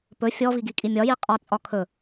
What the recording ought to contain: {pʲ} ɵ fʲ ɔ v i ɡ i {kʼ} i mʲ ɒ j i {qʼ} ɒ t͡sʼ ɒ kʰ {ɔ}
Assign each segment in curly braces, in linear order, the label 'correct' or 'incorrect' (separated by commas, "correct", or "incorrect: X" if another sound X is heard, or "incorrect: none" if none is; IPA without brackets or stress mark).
incorrect: p, correct, correct, incorrect: ɵ